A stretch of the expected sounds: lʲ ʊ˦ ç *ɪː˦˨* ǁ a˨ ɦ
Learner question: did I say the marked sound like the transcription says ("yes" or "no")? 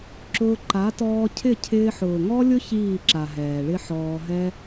no